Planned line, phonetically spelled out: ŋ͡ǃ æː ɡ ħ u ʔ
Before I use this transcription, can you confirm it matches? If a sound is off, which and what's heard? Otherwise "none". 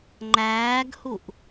ħ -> h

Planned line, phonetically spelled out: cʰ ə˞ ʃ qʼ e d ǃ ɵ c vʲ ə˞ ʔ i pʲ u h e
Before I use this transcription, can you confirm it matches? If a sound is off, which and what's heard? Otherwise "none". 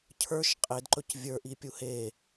none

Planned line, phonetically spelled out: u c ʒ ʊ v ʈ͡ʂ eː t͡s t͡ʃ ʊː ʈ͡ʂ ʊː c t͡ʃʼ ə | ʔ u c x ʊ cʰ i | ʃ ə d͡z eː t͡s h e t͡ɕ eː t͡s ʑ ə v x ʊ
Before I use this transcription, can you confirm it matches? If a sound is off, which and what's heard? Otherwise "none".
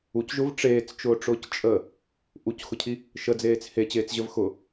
none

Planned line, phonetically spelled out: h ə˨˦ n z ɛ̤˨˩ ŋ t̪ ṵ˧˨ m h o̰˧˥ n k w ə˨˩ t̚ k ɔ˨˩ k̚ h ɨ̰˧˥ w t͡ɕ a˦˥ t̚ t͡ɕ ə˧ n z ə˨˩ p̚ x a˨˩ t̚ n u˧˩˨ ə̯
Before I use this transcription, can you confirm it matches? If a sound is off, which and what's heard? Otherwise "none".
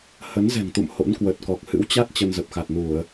none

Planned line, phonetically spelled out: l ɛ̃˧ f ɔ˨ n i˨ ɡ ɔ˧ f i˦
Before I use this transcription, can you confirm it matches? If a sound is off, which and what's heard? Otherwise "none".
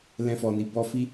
ɡ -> b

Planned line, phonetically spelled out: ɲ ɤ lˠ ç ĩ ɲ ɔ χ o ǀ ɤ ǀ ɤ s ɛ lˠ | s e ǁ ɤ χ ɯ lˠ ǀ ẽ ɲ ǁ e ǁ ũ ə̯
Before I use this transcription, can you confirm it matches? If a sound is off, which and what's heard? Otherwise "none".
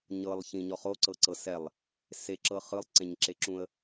none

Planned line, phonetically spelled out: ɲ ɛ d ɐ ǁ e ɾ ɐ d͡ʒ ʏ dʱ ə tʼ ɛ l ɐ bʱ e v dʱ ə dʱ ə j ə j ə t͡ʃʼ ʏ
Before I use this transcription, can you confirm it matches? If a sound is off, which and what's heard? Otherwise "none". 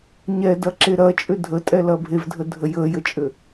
d͡ʒ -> t͡ʃʼ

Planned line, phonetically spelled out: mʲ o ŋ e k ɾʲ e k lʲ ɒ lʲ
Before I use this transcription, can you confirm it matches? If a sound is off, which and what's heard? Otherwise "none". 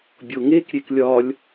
mʲ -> bʲ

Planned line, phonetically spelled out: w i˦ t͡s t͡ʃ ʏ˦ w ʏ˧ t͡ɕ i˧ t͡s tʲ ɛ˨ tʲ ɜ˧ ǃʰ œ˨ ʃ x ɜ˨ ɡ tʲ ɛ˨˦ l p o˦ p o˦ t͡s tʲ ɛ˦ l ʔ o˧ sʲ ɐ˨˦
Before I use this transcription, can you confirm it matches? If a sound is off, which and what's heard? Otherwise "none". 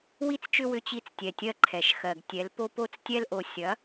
œ˨ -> ɛ˨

